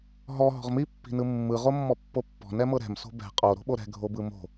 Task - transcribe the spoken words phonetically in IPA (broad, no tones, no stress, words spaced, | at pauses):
ɦɔ ɦɔ̤ʁmi pːi̤nɯmːɯ ʁomːɔpːopːɔ̤ nɛmɤɾɛ̤m so̤bɛ̤ qʼo ɾo̤ɓoɾɛ̤ ɡʱobɯmo̤